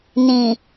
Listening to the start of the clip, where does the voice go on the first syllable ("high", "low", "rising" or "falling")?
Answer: low